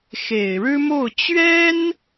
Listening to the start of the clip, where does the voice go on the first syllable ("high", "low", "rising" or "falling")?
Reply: low